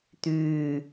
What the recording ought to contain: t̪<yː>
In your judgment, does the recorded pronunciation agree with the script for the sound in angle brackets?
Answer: yes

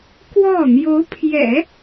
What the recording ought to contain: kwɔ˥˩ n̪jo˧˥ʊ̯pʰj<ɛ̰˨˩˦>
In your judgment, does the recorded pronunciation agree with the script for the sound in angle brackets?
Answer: yes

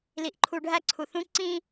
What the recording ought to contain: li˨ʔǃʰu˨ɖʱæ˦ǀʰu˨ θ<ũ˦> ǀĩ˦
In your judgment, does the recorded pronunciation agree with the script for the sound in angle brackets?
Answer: yes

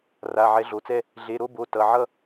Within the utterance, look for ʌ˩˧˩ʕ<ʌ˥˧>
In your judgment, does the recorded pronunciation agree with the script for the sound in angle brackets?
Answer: yes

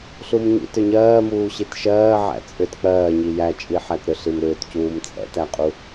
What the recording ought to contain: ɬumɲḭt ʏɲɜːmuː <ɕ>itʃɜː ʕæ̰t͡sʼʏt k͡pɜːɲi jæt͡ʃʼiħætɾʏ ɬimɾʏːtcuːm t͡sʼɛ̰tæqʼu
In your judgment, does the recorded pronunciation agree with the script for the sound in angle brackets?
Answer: yes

